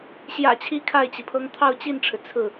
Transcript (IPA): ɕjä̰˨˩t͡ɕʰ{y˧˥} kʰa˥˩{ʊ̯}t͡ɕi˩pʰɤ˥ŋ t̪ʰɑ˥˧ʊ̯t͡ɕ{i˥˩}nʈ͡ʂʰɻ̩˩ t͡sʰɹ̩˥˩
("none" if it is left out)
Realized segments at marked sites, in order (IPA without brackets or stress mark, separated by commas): i˧˥, ɪ̯, i˥˩